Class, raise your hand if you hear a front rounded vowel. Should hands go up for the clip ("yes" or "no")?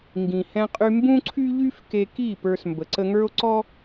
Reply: yes